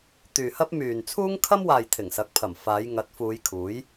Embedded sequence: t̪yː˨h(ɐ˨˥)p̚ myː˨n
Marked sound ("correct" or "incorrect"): incorrect